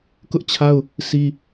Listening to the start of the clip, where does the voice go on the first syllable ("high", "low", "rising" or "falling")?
high